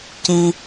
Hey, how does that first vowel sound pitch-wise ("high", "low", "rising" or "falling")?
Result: low